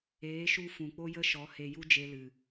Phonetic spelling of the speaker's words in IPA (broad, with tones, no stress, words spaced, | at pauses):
eː˨˦ʃu˧ fũ˨k͡po˦jə˦ʃɔ˨˦ he˧ju˦d͡ʒe˧lɨ˨